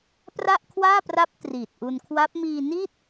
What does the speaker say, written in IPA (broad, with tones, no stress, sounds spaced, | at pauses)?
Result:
p r a˥˩ ʔ kʰ w aː˥˩ p r a˦˥ p̚ t r iː˨˩ t̚ ʔ u˧ n kʰ w a˦˥ p̚ m iː˧ n i˥˩ t̚